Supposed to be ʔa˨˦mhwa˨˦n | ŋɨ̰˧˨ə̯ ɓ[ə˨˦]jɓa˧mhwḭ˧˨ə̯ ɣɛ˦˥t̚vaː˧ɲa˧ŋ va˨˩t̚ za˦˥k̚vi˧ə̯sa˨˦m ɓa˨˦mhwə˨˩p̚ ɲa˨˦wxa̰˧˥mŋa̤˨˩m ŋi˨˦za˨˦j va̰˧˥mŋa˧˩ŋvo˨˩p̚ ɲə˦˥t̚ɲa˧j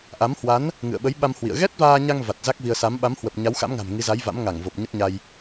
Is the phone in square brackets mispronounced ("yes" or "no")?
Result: no